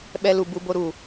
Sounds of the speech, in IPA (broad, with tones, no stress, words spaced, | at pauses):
ɓɛ˧lu˨ bu˧bo˧ɾu˨